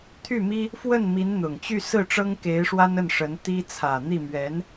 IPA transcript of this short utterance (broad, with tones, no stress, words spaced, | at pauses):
t̪ʰy˥˩mi˥ | fwə˥˩nmi˧˥nn̪ʊ˨˩ŋt͡ɕy˥˧ sɹ̩˥˩ʈ͡ʂɤ˥ŋ ke˧˥ɪ̯ʂwa˥n ə˥˩nʂə˧˥n t̪i˥ t͡sʰä˨˩n̪i˥˩ mɥɛ˧˥n